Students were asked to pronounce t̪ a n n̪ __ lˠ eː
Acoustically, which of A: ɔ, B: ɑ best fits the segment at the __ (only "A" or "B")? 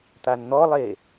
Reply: A